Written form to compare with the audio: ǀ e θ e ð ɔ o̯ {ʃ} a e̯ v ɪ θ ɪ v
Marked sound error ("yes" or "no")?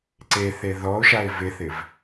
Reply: no